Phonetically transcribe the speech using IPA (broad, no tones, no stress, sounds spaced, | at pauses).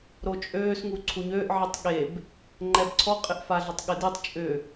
ɾ o t͡ʃʼ øː s ŋ u ǀʰ u ɲ øː ʔ ʕ i tˤ ɠ e b | ŋ͡ǃ ɛ b ǀʰ ɔ qʼ ɪ ʔ f a ɮ ʏ tˤ ɠ ɪ d i tˤ t͡ʃʼ ʏ